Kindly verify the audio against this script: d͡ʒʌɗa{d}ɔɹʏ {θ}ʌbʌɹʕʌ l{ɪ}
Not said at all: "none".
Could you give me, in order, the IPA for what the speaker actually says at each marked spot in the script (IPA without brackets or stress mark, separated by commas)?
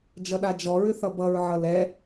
d͡ʒ, θ, ɛ